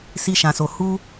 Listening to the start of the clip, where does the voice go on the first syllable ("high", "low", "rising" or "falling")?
high